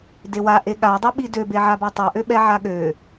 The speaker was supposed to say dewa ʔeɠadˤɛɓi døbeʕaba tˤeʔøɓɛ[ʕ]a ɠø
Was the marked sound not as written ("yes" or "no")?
no